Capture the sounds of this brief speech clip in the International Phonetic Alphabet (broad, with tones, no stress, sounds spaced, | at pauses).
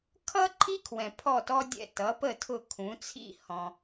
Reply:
kʰ ʌ˥ ǃʰ i˥ kʰ w ɛ̃˩ pʰ ɔ˥˩ t ɔ˥ dʲ ɛ̰˥˩ t ʌ˩˥ p ə˥˩ tʰ ʊ˥˩ kʰ ũ˩˥ t͡sʰ ḭ˥ h ɔ̃˩